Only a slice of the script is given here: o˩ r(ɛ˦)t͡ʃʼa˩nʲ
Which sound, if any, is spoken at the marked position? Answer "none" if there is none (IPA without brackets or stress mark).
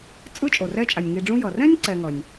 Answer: ɛ˦